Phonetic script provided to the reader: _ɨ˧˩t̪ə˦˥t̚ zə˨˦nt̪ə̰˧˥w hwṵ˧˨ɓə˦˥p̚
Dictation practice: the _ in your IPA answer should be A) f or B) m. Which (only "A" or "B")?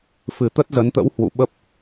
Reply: A